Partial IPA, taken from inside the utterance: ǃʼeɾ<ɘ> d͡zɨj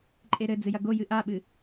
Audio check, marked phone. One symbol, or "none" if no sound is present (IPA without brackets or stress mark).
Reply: ɘ